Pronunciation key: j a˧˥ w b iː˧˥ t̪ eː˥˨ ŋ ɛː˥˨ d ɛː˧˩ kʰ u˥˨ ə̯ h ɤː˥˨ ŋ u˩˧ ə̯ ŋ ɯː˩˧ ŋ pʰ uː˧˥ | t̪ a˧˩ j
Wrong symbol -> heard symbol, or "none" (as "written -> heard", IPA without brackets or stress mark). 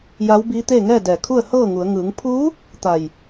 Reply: none